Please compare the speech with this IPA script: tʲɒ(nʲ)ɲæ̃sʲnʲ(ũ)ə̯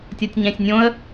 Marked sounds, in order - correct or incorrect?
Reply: incorrect: tʲ, incorrect: õ

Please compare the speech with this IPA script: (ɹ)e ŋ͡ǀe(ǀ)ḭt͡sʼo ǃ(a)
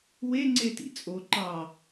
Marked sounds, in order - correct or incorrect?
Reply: incorrect: w, incorrect: t, incorrect: ɑ

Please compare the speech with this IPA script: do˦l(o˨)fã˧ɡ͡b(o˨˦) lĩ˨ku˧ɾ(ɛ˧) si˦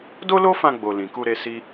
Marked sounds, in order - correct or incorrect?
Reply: incorrect: o˦, incorrect: o˨, incorrect: e˧

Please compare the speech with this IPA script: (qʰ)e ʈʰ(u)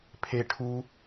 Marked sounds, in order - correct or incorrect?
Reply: incorrect: pʰ, correct

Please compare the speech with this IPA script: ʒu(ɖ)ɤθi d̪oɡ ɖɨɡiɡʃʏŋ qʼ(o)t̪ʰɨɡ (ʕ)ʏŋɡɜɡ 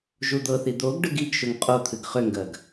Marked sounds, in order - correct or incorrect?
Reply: incorrect: d̪, correct, incorrect: χ

